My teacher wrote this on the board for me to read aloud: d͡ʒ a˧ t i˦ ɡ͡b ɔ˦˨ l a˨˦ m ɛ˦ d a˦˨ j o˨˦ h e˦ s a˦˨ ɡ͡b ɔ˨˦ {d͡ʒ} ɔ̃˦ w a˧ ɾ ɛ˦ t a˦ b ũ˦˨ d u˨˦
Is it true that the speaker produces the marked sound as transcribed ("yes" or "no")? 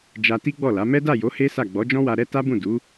yes